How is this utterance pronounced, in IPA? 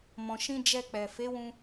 mɔ̃˨ʃĩ˧d͡ʒɛ˧k͡pɛ˨ fe˨˦wũ˧

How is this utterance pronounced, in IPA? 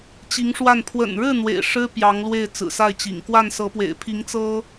t͡ɕi˧˥ŋʂwa˥˩n pʰwə̰˨˩nɻɻ̩˥˩ n̪wḛ˨˩ɪ̯ʂɻ̩˥ pjɑ˧˥ŋlwe˥˩ɪ̯ t͡sɹ̩˨˩sa˥˩ɪ̯t͡ɕḭ˨˩ŋ kwa˥˩nsɤ˧˥pwḛ˨˩ɪ̯ pʰi˧˥ŋt͡sɤ˥

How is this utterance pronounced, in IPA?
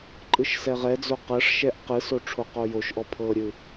ǃʼɯʃsɛʁɛd͡zo qɤʂʃɛʔ qɯso ʈ͡ʂʰoqojoʃʔɔ pʰɤɾʲɯ

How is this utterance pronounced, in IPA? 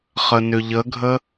χənʏʎəɡʱə

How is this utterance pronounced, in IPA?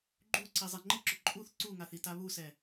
ɡ͡ǃuǀi zˤeŋ͡ǃɪǁʊ ǃʼuθ ǀuŋaθ itaβusɛ

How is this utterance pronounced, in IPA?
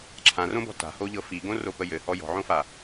ǁʰãrõbɔ̤ ta̤hoʎɤ fiɡõropə jɘhɔ jɔ̤ʕõfa

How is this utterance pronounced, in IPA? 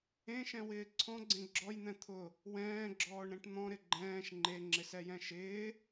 ẽʃɛ̃wɪː ǀʰɔ̃ɡ͡ǀẽ ɡ͡ǁɔjn̪ɛ̃ t̪ʰʊ | wɛ̃ːɡ͡ǁɔːɳɾɛ̃ʈ n̪ɔ̃ɾɪ ɡ͡ǃɛ̃ːʃ ŋ͡ǃeŋ͡ǁɪsɛjɛ̃ ʃɪː

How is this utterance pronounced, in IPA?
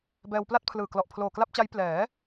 bɛː˧wpla˥˩t̚pʰlɯː˨˩ klɔ˨˩ʔpʰloː˨˩kla˥˩p̚t͡ɕa˦˥j plɛː˩˦

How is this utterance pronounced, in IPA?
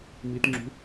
mitŋ͡ǁṳ

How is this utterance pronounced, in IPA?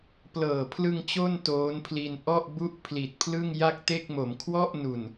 plɤː˨˩pʰlɯ˧ŋ t͡ɕo˥˩n toː˦˥npʰli˧n ʔɔ˥˩ʔbu˥˩ʔ pʰli˨˩t̚pʰlɯ˥˩ŋ ja˥˩k̚te˥˩k̚ mo˩˦mkʰwɔ˥˩ʔnu˨˩n

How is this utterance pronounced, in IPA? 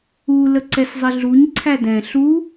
u ləǀɛszˤɪɮuɲ ǀʰædɛ̃ ɬu

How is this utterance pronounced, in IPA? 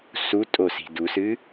sutʼosi̤d usɨ

